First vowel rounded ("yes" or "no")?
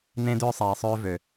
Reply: no